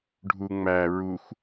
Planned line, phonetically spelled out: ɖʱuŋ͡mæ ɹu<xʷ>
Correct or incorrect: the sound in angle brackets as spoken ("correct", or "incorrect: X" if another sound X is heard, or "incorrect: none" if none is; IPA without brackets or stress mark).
correct